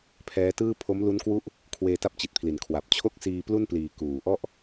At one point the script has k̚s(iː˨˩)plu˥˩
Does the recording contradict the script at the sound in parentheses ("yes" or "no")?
yes